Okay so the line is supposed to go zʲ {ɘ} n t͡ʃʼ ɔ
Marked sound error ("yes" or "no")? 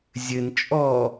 no